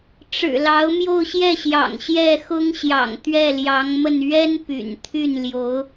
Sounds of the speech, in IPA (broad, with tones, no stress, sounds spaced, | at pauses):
ʈ͡ʂ ɻ̩˨˩ l ɑ˧˥ ʊ̯ m j o˥˧ ʊ̯ ɕ j ɛ˥˩ ɕ j ɑ̰˨˩ ŋ ɕ j ɛ˥˩ x ʊ˥ ŋ ɕ j ɑ̰˨˩ ŋ t̪ ɥ ɛ˥˩ l j ɑ˧˥ ŋ m ə˥˩ n ɥ ɛ˥ n p y̰˨˩ n t̪ʰ y˥˩ n l j o˧˥ ʊ̯